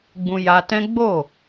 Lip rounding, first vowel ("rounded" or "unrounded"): rounded